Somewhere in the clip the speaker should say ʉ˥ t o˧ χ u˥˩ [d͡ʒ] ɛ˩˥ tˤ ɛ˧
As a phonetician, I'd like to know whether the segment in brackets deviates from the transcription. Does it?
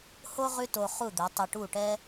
yes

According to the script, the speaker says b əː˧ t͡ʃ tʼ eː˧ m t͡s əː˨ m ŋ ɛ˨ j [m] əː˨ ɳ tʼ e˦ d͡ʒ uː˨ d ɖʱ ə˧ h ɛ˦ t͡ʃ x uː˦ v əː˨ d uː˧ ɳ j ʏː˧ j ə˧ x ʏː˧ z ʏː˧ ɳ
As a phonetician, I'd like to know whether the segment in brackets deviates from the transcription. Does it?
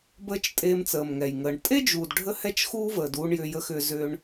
yes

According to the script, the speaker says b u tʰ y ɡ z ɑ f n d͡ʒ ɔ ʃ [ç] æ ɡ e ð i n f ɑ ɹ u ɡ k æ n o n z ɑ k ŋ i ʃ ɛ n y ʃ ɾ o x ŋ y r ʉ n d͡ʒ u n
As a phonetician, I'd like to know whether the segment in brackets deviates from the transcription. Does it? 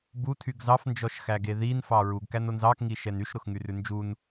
yes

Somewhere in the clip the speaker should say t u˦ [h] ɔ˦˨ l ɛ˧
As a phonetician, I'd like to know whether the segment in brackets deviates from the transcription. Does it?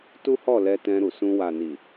no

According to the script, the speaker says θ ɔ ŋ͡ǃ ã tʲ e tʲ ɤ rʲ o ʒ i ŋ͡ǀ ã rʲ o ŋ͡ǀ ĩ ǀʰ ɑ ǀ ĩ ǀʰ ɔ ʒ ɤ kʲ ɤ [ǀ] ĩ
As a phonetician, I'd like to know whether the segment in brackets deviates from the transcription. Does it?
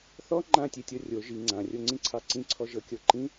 yes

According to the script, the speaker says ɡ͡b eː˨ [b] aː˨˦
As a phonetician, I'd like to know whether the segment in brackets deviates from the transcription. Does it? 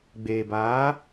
no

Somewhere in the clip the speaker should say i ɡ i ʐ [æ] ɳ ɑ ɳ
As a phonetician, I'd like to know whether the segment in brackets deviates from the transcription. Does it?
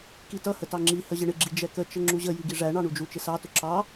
no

